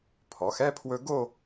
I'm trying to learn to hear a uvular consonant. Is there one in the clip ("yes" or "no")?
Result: no